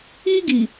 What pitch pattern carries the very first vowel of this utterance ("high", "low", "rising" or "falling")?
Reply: high